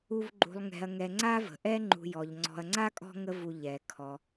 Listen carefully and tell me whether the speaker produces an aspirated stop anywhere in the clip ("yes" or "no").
yes